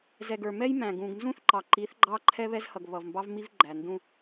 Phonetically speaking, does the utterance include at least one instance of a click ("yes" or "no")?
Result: yes